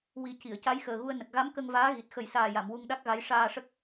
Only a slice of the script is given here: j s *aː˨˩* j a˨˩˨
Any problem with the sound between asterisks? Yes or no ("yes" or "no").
no